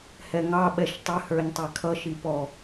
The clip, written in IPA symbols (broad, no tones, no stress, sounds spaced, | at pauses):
h ɛ ŋ ɑ ɓ ɛ ʃ tˤ ɪ h ə˞ ɲ tˤ ɛ kʰ ʌ ʃ i p ɔ